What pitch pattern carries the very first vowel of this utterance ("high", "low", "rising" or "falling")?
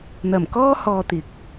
low